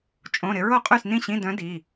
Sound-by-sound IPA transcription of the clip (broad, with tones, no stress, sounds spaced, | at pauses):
t͡ʃʼ õ˧˥˧ ɾ ɪ˧˥ ɹ o˥˨ qʼ y˥˨ s n ĩ˥˨ ɕ ĩ˧˥˧ d œ̃˧˥ d i˩˧˩